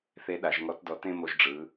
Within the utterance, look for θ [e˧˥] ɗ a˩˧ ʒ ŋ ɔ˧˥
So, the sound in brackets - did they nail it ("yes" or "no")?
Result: yes